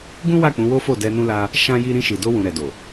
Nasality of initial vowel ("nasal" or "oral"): nasal